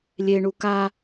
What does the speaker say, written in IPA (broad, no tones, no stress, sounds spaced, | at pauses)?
lʲ e ɳ u k a